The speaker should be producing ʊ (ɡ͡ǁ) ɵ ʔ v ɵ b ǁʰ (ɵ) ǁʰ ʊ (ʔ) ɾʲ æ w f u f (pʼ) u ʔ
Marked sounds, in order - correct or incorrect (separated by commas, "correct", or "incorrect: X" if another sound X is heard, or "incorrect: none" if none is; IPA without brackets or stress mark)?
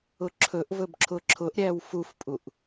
incorrect: ǁʰ, incorrect: ʊ, correct, correct